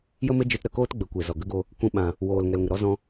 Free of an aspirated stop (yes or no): yes